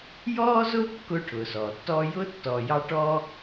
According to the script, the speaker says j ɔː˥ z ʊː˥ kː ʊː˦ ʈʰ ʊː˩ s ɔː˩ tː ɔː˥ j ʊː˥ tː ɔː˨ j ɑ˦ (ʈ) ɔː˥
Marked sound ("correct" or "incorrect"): correct